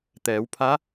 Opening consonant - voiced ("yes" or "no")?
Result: no